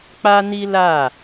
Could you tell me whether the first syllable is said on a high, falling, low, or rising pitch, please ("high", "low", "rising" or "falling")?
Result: high